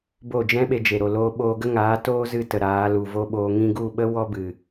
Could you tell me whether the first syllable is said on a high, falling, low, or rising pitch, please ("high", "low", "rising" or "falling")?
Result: falling